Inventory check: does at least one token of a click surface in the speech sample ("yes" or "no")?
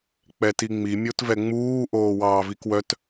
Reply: no